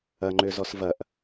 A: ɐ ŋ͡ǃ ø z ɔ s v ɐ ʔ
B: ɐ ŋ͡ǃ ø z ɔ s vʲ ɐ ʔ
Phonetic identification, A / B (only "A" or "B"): A